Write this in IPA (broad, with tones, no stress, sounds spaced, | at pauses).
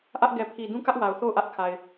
ʔ ä˦ ʔ ɡ ɛ˨ pʰ i˨ d ũ˦ k ä˦ ʔ w a˨ ʊ̯ θ o˦˨ ʊ̯ ʔ ä˦ ʔ kʰ a˨ ɪ̯